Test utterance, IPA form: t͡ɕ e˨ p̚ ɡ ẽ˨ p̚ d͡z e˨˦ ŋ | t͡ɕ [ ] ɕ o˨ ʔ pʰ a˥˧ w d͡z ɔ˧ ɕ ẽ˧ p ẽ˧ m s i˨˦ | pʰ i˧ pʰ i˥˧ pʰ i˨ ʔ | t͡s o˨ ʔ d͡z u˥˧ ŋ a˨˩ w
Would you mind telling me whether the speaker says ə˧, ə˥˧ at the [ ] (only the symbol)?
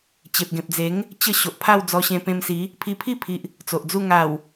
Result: ə˥˧